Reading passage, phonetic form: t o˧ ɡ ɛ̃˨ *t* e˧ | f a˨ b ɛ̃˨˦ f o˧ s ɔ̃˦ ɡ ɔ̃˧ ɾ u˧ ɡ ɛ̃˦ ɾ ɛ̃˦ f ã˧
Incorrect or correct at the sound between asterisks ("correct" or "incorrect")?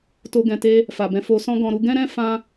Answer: correct